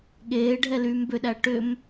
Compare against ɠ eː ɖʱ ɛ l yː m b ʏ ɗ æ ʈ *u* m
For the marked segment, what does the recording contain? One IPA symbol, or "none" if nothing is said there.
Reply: ʏ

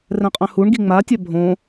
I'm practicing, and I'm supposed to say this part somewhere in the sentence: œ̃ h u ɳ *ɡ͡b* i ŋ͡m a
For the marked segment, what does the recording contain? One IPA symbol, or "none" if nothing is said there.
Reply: ɡ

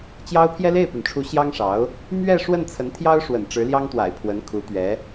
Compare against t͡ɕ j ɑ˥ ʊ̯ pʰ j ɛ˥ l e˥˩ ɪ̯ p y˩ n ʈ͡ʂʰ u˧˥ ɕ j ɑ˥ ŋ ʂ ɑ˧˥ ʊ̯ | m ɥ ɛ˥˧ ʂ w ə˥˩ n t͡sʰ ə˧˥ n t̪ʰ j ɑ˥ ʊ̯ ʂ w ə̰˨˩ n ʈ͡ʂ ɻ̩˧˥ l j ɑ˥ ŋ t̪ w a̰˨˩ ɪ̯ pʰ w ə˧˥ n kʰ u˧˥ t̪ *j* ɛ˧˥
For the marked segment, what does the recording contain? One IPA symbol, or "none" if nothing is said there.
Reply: ɥ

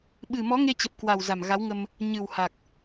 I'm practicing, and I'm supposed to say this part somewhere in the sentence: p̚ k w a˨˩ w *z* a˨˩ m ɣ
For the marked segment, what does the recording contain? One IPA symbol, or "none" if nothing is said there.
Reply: z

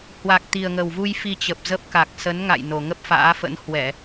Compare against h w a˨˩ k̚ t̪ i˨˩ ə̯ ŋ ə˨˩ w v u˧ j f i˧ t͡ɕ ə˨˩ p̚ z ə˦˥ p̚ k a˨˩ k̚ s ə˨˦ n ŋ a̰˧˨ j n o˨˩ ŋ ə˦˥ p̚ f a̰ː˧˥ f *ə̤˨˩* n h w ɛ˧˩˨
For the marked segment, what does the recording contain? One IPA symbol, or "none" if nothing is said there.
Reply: ə̰˧˥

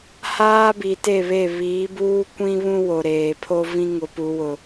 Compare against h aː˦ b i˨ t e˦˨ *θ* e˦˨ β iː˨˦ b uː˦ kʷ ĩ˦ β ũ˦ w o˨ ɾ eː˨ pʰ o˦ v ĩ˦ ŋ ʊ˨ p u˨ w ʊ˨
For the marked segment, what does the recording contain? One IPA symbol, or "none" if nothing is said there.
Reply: β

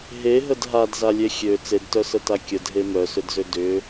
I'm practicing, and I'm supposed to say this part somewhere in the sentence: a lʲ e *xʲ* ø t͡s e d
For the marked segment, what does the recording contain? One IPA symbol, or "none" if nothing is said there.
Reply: xʲ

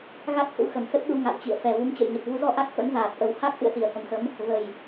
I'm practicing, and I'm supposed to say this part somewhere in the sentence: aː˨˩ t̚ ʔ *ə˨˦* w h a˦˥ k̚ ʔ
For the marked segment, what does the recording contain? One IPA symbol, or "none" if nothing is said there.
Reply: ə˧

